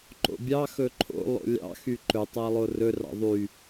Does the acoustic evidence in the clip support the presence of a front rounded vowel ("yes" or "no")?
yes